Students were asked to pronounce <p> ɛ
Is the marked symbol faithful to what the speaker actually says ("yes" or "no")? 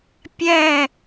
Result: no